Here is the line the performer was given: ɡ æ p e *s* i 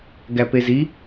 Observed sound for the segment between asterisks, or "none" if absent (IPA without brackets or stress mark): z